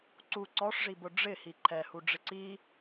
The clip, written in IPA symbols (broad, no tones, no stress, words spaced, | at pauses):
ǀu ǀɔʂʐibʊ ɖ͡ʐɪhi ǃʰɛhuɖ͡ʐɪ ǀi